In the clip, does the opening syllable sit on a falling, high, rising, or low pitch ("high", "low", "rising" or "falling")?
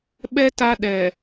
high